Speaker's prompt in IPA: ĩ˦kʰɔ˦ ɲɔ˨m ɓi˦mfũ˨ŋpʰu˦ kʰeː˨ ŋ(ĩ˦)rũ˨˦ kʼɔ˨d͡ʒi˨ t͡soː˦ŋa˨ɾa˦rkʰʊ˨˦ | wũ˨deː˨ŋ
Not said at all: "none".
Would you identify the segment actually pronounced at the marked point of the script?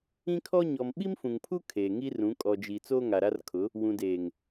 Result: i˦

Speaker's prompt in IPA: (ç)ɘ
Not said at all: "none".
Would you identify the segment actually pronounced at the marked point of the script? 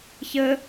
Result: ç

